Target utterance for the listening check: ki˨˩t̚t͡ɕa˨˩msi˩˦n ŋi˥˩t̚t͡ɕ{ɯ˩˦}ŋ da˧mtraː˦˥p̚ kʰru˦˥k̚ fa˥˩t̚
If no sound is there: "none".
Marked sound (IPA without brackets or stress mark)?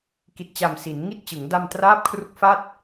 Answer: ɯ˩˦